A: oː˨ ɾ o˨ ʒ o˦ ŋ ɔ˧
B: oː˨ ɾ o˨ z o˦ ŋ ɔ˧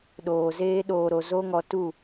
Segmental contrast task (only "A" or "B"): B